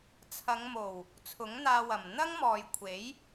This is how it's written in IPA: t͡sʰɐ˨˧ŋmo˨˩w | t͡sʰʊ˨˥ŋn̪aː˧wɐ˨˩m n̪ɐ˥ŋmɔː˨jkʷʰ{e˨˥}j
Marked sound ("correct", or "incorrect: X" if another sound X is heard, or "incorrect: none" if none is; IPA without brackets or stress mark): correct